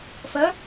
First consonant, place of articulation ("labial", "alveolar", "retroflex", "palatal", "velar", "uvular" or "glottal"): labial